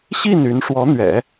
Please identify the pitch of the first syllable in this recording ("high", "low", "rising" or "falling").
falling